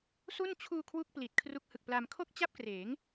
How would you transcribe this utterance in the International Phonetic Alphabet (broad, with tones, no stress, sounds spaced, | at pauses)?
s u˥˩ n t͡ɕʰ uː˧ kʰ w u˥˩ k̚ p l i˨˩ t̚ kʰ r u˦˥ k̚ h ɯ˨˩ k̚ p l a˧ m kʰ o˥˩ k̚ t͡ɕ a˥˩ p̚ k r eː˩˦ ŋ